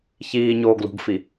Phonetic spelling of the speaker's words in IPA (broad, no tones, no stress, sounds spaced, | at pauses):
ç iː ɲ oː ɡ l ṳ ɡ f i